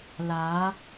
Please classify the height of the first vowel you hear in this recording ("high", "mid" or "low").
low